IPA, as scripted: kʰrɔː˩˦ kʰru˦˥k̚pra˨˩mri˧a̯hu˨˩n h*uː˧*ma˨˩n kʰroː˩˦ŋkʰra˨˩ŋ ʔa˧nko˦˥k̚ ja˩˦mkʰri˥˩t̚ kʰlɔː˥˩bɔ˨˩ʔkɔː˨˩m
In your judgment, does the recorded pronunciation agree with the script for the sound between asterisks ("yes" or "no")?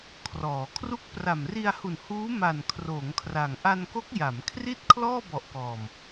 no